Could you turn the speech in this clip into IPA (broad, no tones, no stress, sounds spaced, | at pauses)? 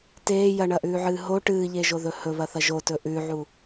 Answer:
t eː j ɐ ɳ ɐ ʔ ʉː ʕ ɨː ɦ o ʈ ɨː ʎ e ʒ o ð ɵ h ɵ β ɐ θ ɐ ʒ o t ɵ ʔ ʉ ʕ u